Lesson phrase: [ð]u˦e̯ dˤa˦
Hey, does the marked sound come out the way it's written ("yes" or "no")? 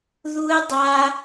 yes